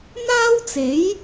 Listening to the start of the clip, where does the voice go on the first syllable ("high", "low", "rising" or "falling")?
high